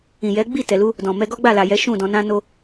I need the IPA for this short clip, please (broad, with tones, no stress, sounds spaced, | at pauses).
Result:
ĩ˨ j ɛ˨˦ ɡ͡b i˦˨ t ɛ˨ l u˧ | d ɔ̃˨ m ɛ˧ ɡ ɔ˦ ɡ͡b a˦˨ l a˨ j ɛ˨˦ ʃ ũ˦˨ d ɔ̃˧ n ã˧ n o˧